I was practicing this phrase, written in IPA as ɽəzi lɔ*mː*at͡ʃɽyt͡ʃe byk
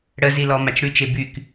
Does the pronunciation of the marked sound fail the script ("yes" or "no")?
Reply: yes